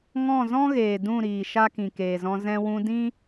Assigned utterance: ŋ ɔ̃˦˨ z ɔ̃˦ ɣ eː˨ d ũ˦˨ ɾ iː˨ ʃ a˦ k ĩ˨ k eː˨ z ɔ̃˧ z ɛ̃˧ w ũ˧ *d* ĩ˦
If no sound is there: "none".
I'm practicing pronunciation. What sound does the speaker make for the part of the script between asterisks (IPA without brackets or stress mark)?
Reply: d